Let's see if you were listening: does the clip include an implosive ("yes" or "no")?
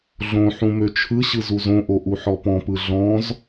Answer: no